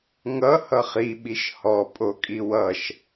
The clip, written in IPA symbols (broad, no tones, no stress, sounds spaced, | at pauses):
ŋ ʌ h ʌ χ i ɓ i ʃ h ɔ pʼ o kʼ i w ʌ ʃ